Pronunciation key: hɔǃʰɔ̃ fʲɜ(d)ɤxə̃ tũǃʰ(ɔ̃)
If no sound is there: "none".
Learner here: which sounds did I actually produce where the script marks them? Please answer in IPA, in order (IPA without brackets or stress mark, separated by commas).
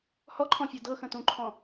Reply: d, ɔ̃